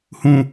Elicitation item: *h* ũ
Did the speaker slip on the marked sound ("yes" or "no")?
no